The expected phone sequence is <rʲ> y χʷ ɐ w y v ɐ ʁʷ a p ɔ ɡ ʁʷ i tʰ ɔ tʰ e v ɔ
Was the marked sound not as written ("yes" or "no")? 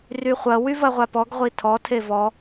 yes